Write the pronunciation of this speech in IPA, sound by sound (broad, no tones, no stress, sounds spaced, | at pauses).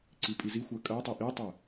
ǀ i pʼ i z i xʷ ɜ kʼ ɜ tˤ i ʔ i tˤ ə